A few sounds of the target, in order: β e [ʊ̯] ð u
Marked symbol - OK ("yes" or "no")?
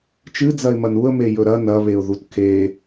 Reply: yes